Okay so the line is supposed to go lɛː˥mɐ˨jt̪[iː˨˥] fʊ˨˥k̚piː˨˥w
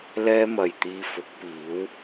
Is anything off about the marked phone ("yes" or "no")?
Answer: yes